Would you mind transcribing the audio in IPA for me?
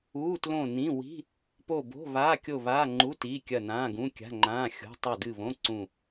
uː˧˥˧ t l õ˦˨ n ĩ˧˥˧ w i̤˧˥˧ | p o˦˨ b o̤˧˥˧ β aː˧˥˧ kʲ o˦˨ β aː˧˥˧ ŋ͡ǃ u˧˥˧ t iː˧˥˧ kʲ ɐ˦˨ n ãː˧˥˧ ɡ ũ˧˥˧ kʲ a̤˧˥˧ ŋ͡ǃ ãː˧˥˧ xʲ o̤˧˥˧ tˤ ɵ˦˨ d ɨ˦˨ β õ˧˥˧ ǀ ũ˦˨

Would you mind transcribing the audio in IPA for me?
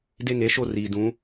d e˦ ŋ e˨˦ ʃ o˦ r iː˨ d ũ˨˦

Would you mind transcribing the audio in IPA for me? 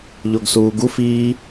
ʎ o ɡ s uː ɡ u f i

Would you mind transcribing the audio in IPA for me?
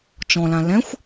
t͡ʃ ɔ̃ l ã l ɛ̃ xʷ

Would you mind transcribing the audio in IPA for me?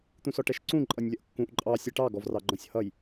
t̪ ũ s ɔ ʈ ɛ ʃ ǀ ũ ǃʼ ʌ nʲ lʲ ʌ ʔ kː ũ ʔ ǃʼ ɑ sʲ ɛ ʈ ɑ ɡ ɔ v r ɑ ɡ͡ǃ ɔ̃ sʲ h ʌ j

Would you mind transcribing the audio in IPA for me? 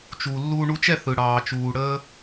t͡ʃ u˩ lː uː˧ ɳ u˧ t͡ʃ ɛ˥˩ θ ɯ˩ ɽ ɑː˩ t͡ʃ uː˩ ɽ əː˧

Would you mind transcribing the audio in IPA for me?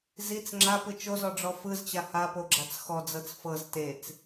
z i t͡s ŋ͡ǁ a p ɯ t͡ʃ o z ɔ ɖ͡ʐ ɔ f ɯ z t͡ɕ a h a p o ɡ͡ǁ a t͡s x ɔ d͡z ɤ t͡s f ɤ z t e t͡s

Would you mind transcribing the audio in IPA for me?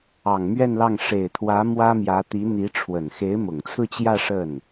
ɑ˨˩ ŋ m ɥ ɛ˥˧ n l ɑ˥˩ ŋ ʂ e˨˩ ɪ̯ t̪ʰ w ä˧˥ m w ä˥ m j ä˧˥ t̪ i˧˥ n̪ i˧˥ ʈ͡ʂʰ w ə˨˩ n x e˧˥ ɪ̯ m ʊ˨˩ ŋ t͡sʰ ɹ̩˥˧ t͡ɕ j ä˥˧ ʂ ə˥˩ n

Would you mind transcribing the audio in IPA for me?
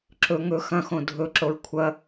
ǁ ɵ ŋ ɵ x ɐ̃ x õ dʱ ɵ ǁ o ɹ kʷʰ ɐ

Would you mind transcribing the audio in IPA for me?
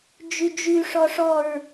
d͡ʒ y d͡ʒ y ʂ ɔ ʂ ɔ ɹ

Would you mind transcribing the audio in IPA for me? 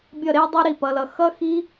bʲ ʌ˥˩ ɾ e˦˥ dˤ i˦˥ ɾ i˥˩ p ʌ˨˦ l ʌ˨˦ x ʌ˦˥ x i˦˥

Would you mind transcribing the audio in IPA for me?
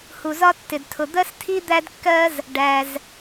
h u˩ z ɒ˥ tː ɪ˩ d tʰ ʊ˩ d̪ ɜ˥ s tʰ i˥ d̪ æ˥ d kː ɜ˥ z | ɖ æ˩ z

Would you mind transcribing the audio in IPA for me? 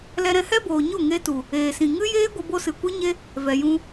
l ɛ˧ ɾ ɛ̃˧ h ɛ˦ b oː˨ ɲ o˦˨ ŋ e˧ t u˨ | eː˨ s ĩ˨ ŋ ɨ˦ j eː˦ ɡʷ ə˧ b o˧ s ɨ˨ kʷ ɨ˦ ɲ e˦ | v ɛ˨ j ũ˧

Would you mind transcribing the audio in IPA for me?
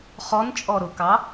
χ ɔ n t͡ʃʼ ɔ ɾ ʊ k ɑ

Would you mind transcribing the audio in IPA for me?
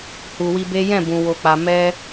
h u˨ w i˧ b e˦ j ɛ̃˦˨ b ũ˨ w o˨ k͡p a˨ m ɛ˧

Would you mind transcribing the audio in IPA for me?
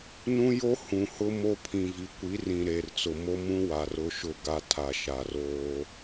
n ũ˦ j o˦ h ũ˨ h ʊ˦ m o˦ pʰ ĩ˨ v i˨ kʷ i˨˦ r ĩ˨ ɾ e˨ r t͡s ʊ˨ m o˦ m ũ˦ w a˨ r ʊ˦ ʃ ʊ˦˨ ɡ a˦ tʰ a˨ ʃ a˨ r oː˦

